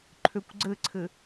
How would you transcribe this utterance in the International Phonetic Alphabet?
ǃʰ ø kʷ ɡ͡ǀ ɘ ǀʰ ɘ

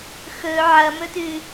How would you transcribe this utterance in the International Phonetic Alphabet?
x ɵ ʕ ɐ m ɵ t ʉ

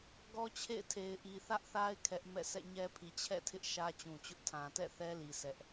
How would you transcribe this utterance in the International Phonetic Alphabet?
ɡ ɔ˦ t͡ɕʰ ḛ˦˨ ɪ̯ tʰ e˨ ɪ̯ ʔ i˨ θ ä˦ ʔ θ a˦ ɪ̯ kʰ ɛ˦ ʔ m ɛ̰˦˨ s ɛ̰˦˨ ɲ ɛ˦ pʰ i˨ t͡ɕʰ ɛ̰˦˨ tʰ ɪ˦ ʔ ʃ ä˦ t͡ɕ ũ˨ t͡ɕ ʊ˦ ʔ tʰ ã˨ t ɛ̰˦˨ θ ɛ˦ l i˨ sʰ ɛ˦ ʔ

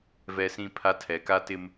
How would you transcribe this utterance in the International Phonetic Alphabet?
v ɛ˦ s ĩ˦ pʰ a˦ tʰ ɛ˨ k a˦ t ɪ˦ m

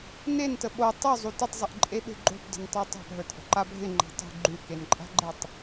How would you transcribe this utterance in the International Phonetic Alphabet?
n e n t ə ɓ o tˤ ʉ zˤ u t ɪ tˤ zˤ ə ʔ ǃʼ e ɓ e̤ ɡ͡ǃ o̤ p d ə̤ n tˤ ʉ tˤ a̤ p ɦ ə˞ t ʔ ə̤ ǃ a bʱ ɪ ŋ͡ǃ a̤ tˤ ṳ ɡ͡ǃ ʉ k e n ǃʼ a̤ ɡ͡ǃ e tˤ

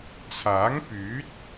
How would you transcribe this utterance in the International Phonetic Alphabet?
t͡sʰ aː˨˥ ŋ p yː˨˥ t̚

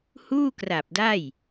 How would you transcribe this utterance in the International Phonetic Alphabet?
h uː˥˩ k r a˨˩ p̚ d a˥˩ j

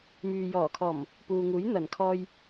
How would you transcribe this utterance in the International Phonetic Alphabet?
m yː˨ j ɔː˨˩ kʰ ɔː˨˩ m | p uː˨ ŋ uː˨˥ j n̪ ɐ˨˩ n kʰ ɔː˧ j

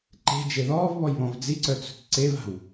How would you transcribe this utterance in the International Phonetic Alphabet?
ǃ e̤ d͡ʒ e ð ɔː v β ɔ j β ɔ̃ v d͡z i ǀ œ t͡s ṳ t ǀ e v a̤ w

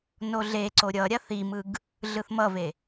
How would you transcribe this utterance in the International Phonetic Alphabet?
n o ɮ e ǀ o ɾʲ ʌ ɾʲ a θ i m ɯ ɡ | ɮ ɯ θ m ʌ v e

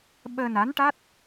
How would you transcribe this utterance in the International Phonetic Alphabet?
ɓ əː˧ n a˧˥ n ʈ a˦˥ t̚

